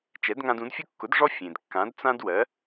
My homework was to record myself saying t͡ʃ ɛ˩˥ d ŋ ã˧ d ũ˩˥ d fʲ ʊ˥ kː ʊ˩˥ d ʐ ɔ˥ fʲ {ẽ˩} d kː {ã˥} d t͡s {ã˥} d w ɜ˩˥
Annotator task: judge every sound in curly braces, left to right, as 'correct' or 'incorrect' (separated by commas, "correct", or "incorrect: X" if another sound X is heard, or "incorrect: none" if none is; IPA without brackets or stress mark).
correct, incorrect: ã˩˥, correct